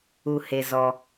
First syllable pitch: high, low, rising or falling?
low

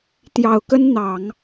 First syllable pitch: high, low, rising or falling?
low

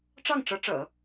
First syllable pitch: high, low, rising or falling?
falling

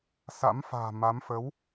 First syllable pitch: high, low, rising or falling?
rising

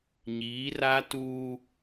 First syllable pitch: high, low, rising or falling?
rising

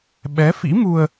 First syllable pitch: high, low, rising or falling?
rising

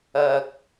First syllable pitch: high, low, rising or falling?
low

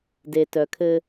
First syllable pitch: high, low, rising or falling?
low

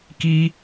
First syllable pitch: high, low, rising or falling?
high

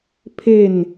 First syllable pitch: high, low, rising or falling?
falling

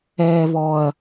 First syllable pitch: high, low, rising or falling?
high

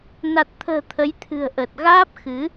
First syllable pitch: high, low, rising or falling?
low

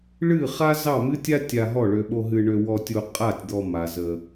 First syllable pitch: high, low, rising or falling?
falling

